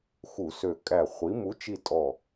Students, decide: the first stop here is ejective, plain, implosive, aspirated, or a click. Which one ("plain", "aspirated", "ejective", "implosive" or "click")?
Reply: ejective